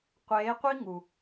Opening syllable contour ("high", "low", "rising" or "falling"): rising